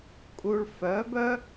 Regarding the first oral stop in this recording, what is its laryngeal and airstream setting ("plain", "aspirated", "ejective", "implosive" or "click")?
ejective